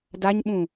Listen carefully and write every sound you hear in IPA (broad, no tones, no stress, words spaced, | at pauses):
daɲɓũ